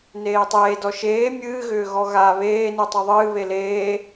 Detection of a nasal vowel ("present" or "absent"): absent